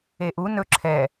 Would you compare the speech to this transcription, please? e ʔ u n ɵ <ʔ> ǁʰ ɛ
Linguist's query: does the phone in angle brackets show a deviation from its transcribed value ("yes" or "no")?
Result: yes